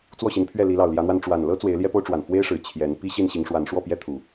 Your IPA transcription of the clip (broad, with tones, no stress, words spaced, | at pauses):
t͡swɔ˥˨ɕi˨˦npʰɥɛ˥˨ li˨˦lɑ˨˩ʊ̯ljä˨˦n̪wa˧n ʈ͡ʂwa˨˩nlɤ˦ t͡swe˨˦ɪ̯ljɛ˦po˦ʊ̯ʈ͡ʂwa˨˩n fwe˦ɪ̯ʂɻ̩˨˩ t͡ɕʰjɛ˨˦n pi˦ ɕi˥˨nɕi˨˦ŋʂwa˨˦n ʂwɔ˥˨pjɛ˦ t̪ʰu˨˩